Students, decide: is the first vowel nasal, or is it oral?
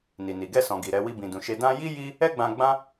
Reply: oral